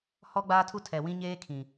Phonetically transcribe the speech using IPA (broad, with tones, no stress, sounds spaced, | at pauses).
h ɔ˦ ɡ͡b aː˦ tʰ u˦ tʰ ɛ˨ w ĩ˦ ɲ eː˦ kʰ ĩ˨